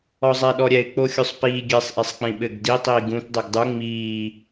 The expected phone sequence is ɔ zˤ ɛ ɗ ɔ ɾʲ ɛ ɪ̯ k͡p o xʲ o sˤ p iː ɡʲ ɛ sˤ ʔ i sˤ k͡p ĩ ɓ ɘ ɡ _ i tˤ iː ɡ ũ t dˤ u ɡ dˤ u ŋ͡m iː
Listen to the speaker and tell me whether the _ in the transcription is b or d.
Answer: d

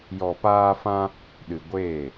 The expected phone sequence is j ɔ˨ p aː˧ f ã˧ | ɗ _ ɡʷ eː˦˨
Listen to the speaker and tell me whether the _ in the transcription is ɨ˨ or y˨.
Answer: ɨ˨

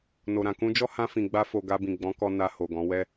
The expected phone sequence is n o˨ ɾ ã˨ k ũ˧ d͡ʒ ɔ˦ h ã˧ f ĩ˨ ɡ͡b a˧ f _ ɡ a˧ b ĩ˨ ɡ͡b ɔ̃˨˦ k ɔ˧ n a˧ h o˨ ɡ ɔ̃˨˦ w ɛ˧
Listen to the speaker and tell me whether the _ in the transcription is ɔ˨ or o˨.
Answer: o˨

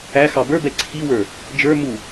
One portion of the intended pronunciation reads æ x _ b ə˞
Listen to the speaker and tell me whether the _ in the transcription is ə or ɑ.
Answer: ɑ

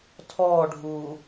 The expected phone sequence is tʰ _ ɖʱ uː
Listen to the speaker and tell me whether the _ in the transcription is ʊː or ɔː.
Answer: ɔː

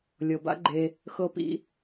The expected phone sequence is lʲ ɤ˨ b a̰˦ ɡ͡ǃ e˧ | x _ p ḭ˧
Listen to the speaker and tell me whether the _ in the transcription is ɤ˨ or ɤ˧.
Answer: ɤ˧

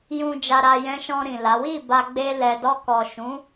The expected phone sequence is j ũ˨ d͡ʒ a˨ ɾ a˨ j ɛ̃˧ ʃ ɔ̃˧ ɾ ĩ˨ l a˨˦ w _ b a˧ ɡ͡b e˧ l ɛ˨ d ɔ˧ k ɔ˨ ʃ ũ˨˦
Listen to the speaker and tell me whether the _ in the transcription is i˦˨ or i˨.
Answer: i˦˨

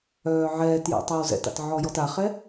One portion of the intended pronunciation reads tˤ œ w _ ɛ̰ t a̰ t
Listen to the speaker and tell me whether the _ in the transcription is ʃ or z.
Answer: z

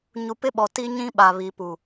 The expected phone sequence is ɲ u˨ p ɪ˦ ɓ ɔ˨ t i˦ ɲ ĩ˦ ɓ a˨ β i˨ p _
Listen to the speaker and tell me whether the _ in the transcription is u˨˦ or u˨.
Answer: u˨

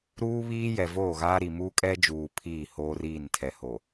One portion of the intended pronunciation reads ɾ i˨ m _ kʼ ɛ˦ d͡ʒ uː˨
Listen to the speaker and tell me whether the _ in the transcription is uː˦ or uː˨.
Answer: uː˦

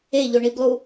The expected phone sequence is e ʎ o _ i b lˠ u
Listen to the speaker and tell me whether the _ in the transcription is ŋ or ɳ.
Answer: ɳ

